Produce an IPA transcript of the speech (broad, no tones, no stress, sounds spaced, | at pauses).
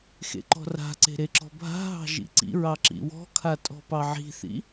x ḛ ǃ ɔ̤ r a̤ ǀ e̤ ɾ e ǁ ɔ̤ bʱ a̤ ɦ ɑ̤ ʒ ḭ ǀ ḭ ɹ ɑ ǁ ḭ w ɔ̤ kʰ a tʼ ɔ̤ p ɑ ʕ i̤ θ ḭ